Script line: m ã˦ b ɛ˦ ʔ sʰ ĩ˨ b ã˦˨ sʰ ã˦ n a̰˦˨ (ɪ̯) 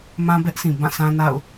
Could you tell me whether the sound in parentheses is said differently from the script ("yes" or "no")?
yes